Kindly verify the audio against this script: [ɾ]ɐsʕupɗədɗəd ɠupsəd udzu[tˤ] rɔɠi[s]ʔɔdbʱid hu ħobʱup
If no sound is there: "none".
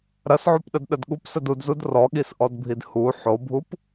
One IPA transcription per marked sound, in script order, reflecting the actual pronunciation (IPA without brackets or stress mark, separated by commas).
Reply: ɾ, d, s